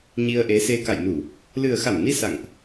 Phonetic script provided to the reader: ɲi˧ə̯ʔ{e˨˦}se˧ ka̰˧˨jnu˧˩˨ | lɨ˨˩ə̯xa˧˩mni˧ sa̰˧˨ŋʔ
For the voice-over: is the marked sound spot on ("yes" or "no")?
yes